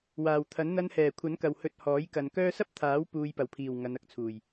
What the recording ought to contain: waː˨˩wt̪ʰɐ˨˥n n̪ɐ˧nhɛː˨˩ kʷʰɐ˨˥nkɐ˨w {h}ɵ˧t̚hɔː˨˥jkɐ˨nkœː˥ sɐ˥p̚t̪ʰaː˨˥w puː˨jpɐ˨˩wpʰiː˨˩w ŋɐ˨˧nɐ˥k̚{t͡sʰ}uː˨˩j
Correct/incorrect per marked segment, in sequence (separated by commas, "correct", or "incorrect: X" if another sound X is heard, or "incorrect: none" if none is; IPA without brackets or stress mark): correct, correct